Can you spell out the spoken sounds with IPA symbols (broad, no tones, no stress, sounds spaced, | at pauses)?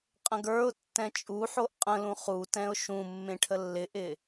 qʼ ə̃ ɡ ə˞ ʊ̯ tː ɛ̃ t͡ʃʼ u ħ o ʔ qʼ ə̃ l ũ χ u t ɛ̃ ʊ̯ ʃ ũ mː ẽ ʈʰ ə lː ɪ ʔ ɪ